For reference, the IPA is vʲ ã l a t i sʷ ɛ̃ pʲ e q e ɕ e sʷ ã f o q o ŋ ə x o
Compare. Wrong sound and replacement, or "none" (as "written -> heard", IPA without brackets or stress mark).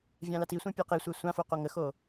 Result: ɕ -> sʷ